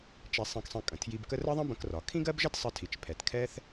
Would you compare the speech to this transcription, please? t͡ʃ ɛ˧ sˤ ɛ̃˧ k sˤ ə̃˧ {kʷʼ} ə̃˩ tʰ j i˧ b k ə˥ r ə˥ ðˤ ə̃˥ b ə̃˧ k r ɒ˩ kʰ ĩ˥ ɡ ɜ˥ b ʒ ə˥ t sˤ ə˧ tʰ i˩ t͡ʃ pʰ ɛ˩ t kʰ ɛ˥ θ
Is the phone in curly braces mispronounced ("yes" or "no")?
yes